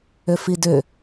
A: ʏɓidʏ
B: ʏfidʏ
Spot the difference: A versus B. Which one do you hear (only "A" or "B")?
B